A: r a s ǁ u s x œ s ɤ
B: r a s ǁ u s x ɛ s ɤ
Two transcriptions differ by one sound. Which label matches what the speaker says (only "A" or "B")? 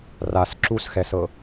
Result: B